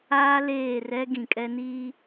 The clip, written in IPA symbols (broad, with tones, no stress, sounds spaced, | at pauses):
aː˦ l eː˦˨ r ɛ˦ ɡ ĩ˨ kʼ ɛ˦ n iː˦